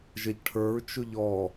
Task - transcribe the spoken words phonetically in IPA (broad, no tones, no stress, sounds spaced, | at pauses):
ʒ ə ʎ ʈʰ ə˞ ɹ t͡ʃ ʊ ʎ ɔ